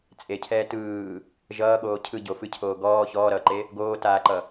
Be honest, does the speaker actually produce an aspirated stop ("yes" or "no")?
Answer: yes